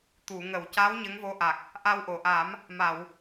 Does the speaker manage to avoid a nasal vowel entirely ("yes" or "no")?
yes